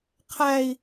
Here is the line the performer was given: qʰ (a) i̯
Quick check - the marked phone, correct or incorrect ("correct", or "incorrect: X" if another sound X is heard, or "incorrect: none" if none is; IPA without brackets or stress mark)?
incorrect: æ